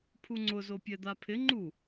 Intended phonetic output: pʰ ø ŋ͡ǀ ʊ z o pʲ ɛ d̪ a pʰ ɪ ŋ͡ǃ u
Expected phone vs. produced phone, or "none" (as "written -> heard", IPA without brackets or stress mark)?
ø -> u